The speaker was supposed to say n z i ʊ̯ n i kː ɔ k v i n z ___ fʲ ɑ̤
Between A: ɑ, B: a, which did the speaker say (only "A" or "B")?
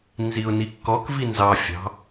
A